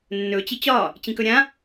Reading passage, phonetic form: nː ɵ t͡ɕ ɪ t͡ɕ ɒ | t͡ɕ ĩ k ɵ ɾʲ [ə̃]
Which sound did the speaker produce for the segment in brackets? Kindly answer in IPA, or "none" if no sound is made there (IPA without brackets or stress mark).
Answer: ã